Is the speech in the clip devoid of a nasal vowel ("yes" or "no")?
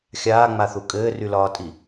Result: yes